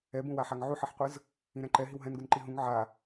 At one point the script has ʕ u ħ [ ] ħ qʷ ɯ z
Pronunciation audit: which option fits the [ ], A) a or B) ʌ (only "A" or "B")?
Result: B